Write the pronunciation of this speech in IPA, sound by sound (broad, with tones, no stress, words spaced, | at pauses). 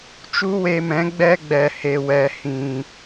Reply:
t͡ʃu˦we˧mɛ̃˨˦ ɡ͡bɛ˦ɡ͡bɛ˨ he˨wɛ˨ hĩ˨